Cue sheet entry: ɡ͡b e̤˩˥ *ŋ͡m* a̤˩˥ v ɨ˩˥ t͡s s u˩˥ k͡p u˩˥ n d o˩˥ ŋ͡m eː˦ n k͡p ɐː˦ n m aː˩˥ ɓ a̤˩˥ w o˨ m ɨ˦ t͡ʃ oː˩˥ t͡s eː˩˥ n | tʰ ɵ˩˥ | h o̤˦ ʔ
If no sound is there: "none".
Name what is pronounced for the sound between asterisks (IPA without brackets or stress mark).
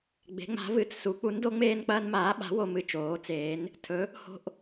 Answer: ŋ͡m